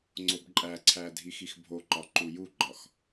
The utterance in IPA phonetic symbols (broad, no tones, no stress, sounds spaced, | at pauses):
ŋ͡ǀ o b ǃʼ æ ǀʰ æ dʱ i x i x bʱ o ǃ ɒ ǃ u j u ɡ͡ǃ ɒ x